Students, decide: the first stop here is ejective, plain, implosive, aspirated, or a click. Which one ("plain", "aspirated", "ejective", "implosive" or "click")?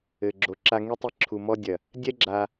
click